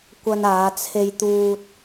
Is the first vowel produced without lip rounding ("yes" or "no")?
yes